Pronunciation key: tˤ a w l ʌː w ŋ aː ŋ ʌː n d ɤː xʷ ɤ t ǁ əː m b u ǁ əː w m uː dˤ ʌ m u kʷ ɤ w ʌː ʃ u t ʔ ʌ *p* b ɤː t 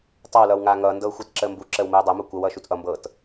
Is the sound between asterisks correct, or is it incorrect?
incorrect